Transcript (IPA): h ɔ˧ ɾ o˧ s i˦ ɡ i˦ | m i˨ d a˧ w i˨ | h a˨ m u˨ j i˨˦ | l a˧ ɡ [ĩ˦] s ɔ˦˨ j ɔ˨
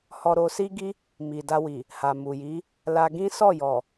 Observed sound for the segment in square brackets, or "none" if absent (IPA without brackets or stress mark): ĩ˦